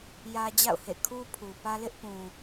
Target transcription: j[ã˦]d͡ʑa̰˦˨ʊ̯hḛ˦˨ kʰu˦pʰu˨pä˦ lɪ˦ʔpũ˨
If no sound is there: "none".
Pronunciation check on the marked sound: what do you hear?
ä˦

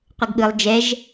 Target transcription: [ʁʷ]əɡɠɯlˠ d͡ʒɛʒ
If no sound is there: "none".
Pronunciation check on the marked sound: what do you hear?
qʷ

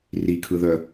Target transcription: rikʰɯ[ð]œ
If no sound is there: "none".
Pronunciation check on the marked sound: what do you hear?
ð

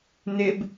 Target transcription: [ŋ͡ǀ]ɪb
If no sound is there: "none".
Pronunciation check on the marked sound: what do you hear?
n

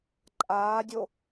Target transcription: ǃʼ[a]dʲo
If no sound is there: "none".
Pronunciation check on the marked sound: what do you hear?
aː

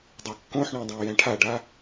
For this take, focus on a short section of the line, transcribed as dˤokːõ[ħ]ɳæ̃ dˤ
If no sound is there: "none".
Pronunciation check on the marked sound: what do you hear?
ħ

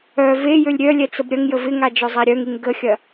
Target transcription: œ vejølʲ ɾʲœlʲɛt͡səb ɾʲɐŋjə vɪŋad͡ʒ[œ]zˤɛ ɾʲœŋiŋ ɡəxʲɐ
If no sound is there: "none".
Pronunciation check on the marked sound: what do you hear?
œ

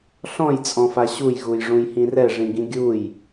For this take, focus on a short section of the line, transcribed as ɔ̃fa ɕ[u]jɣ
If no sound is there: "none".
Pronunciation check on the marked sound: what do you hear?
u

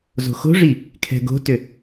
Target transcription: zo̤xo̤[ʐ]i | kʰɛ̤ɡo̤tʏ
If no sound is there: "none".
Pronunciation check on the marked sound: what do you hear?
ʐ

